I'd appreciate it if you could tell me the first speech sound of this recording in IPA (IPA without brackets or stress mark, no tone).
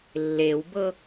lː